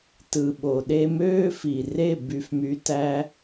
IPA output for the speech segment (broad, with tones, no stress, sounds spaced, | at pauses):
t ɯ˨ ɓ o˨ ɗ e˧ m øː˦ f i˨ r e˦˨ b y˧ f m y˧ t æ˦